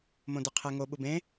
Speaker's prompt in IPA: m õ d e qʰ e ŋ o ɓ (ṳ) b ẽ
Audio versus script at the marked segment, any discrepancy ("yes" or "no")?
yes